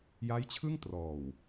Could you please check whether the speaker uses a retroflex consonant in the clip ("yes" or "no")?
no